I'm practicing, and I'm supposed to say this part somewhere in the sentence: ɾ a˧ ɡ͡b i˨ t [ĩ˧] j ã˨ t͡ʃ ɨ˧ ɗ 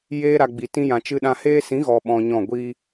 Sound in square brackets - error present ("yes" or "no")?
no